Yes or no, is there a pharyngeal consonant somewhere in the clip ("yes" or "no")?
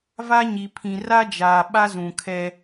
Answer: no